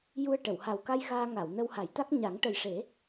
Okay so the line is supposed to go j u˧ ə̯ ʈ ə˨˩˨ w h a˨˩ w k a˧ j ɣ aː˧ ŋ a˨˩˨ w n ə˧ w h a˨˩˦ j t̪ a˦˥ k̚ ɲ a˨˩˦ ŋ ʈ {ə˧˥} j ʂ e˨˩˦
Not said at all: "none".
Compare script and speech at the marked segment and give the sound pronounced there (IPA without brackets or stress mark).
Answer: ə˨˩